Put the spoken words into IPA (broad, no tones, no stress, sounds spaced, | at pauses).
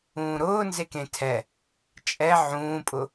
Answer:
ũː ɾ ʊː n z e k ẽ tʰ ɛ | t͡ʃʼ ɛ ʕ ũː pʼ ʊ